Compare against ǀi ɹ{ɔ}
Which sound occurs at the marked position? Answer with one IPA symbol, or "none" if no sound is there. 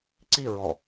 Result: ɔ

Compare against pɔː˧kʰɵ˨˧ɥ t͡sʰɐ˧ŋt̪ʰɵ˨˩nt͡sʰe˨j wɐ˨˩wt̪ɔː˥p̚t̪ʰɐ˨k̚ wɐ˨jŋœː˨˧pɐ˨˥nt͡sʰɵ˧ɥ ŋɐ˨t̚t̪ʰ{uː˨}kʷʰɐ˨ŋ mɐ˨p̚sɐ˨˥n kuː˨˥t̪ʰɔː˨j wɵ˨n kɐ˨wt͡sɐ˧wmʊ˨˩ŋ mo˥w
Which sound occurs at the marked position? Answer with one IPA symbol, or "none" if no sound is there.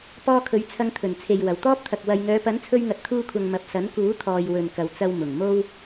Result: uː˧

